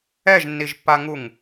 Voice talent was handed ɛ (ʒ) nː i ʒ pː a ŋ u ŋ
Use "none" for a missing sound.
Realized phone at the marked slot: ʒ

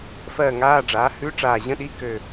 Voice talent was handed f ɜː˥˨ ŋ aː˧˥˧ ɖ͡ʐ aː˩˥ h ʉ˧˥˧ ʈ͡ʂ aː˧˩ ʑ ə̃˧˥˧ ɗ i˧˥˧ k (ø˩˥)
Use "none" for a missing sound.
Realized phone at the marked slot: ø˧˩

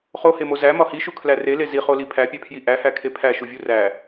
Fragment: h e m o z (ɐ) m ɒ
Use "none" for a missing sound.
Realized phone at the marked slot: æ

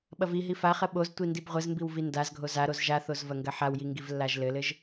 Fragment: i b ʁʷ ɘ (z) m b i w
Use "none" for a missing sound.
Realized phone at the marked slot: z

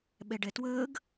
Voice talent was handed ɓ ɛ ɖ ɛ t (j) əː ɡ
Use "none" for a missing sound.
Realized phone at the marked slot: w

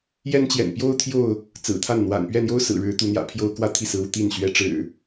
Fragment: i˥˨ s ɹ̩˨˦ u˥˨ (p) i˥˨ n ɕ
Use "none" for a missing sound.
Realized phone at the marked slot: t̪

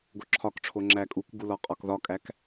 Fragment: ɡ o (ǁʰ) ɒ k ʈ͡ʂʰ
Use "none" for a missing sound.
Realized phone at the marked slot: ǁʰ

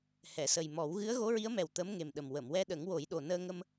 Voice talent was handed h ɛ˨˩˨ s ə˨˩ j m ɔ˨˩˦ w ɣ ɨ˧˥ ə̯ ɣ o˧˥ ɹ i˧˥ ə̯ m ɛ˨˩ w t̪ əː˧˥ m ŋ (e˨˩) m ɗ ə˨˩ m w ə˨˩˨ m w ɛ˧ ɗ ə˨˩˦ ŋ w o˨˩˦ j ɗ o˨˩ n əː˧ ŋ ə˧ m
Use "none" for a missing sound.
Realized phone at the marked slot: e˨˩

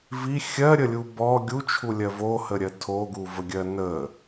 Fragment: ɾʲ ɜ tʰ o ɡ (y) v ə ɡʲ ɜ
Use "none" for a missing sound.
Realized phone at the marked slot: u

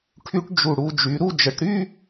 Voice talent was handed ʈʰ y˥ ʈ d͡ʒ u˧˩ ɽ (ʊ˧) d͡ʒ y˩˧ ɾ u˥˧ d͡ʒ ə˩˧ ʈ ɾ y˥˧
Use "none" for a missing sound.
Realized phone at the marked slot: u˧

